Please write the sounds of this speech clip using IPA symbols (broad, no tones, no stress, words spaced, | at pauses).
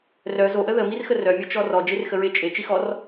rœ zoʔə ðəmirxə rœmʲɔt͡ʃɔ rɔd͡ʒerxəɹe t͡ʃʼet͡ʃixɔr